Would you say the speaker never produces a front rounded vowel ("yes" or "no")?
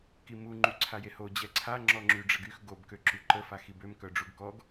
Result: no